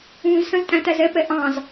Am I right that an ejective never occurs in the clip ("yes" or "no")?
no